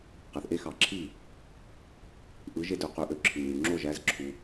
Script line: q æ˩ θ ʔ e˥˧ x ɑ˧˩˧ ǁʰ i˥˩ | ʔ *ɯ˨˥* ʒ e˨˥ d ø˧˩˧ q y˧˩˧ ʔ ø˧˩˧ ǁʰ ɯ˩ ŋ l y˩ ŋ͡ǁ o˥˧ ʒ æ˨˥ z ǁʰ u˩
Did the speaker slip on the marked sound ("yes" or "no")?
no